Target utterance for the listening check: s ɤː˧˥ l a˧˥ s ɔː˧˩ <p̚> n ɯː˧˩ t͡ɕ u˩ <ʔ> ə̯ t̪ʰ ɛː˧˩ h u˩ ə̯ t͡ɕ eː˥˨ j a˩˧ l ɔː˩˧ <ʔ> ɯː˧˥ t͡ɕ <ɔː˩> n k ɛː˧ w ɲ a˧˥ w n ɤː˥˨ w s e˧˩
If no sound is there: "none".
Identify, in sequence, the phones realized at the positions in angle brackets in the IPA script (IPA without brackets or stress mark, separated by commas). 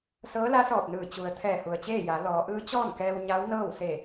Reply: p̚, none, ʔ, ɔː˥˨